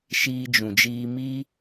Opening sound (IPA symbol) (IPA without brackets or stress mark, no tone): ʃ